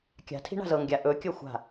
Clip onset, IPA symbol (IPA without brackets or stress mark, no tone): kʲ